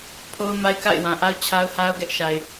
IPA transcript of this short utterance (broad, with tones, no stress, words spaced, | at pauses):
pʰo˦ʊ̯ ma˦ɪ̯ka̰˦˨ɪ̯wã˨ʔa˦ʊ̯ t͡ɕʰa˦ʊ̯ha˦ʊ̯ɡɛ˦ʔʃa˨ɪ̯